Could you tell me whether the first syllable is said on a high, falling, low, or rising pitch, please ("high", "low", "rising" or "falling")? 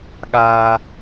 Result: high